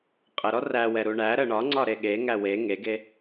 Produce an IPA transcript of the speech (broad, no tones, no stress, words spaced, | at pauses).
qʼəɾɔ ræwɛ ɾuɳæɾə ɳɒŋ͡ǀɒ ɾeɠeŋæ we ŋeɡe